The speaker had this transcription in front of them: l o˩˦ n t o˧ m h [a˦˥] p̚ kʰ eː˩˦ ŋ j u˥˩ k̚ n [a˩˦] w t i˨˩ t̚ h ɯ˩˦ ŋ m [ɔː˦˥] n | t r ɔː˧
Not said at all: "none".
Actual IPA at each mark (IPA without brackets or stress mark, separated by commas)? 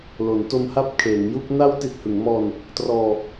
a˦˥, a˦˥, ɔː˧